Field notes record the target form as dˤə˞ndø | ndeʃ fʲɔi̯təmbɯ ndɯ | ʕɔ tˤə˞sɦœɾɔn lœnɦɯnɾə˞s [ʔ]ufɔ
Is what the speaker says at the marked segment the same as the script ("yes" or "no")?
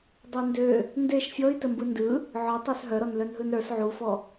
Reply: no